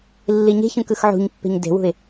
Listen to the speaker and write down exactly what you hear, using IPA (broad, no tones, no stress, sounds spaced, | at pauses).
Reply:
lː i ɲ e̤ ç ũ k ɯ x ʕ ṳ ɲ pː e̤ ɲ d e̤ w ṳ ɪ̯